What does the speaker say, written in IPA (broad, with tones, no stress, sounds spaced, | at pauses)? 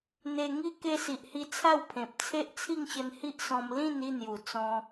n̪ e˧ ŋ i˦ k e˧ s i˨ ʔ h i˧ t͡sʰ a˥˧ w pʰ ẽ˨ p̚ t͡sʰ e˦ ʔ t͡sʰ i˥˧ ŋ ɕ ə˧ n h i˦ ʔ s ɔ̃˧ m l ĩ˥˧ n i˥˧ n̪ j u˨˩ t͡s ɔ̃˧